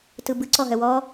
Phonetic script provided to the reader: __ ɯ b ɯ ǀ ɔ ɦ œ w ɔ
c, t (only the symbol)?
t